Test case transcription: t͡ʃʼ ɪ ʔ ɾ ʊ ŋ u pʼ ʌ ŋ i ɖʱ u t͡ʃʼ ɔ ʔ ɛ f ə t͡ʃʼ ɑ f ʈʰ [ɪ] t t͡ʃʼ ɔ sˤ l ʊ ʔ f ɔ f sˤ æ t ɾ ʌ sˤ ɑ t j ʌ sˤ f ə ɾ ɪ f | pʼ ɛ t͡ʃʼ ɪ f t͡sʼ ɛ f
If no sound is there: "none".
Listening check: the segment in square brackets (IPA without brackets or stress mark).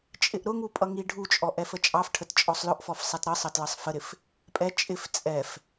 ə